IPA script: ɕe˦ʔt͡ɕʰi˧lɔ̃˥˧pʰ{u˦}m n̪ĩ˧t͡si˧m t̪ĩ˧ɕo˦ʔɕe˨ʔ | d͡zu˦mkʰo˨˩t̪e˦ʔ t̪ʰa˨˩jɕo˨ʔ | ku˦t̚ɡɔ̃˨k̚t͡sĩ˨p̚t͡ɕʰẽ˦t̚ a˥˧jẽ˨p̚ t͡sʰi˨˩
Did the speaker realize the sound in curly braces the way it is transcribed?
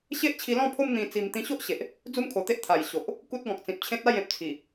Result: no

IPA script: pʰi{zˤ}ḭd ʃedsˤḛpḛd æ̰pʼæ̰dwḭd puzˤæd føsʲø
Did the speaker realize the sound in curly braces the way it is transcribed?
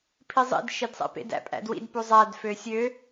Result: yes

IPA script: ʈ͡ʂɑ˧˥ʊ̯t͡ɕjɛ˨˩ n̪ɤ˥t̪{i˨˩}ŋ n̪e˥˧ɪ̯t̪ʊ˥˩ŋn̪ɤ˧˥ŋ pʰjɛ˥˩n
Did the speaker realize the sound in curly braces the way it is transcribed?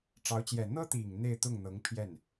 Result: yes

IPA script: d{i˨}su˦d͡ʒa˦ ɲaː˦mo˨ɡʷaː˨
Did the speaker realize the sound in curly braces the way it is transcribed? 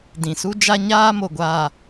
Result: no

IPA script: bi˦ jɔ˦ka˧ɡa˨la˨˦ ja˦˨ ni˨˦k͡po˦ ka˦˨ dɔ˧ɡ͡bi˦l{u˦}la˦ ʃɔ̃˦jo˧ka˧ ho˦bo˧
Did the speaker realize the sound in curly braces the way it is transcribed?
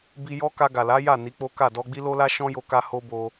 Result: no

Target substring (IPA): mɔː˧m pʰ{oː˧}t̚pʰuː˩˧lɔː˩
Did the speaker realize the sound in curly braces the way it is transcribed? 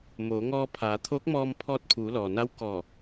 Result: no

